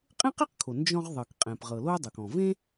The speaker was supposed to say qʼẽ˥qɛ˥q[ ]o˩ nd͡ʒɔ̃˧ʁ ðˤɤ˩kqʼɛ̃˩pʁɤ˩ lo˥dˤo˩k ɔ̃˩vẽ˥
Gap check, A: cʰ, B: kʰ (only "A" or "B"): B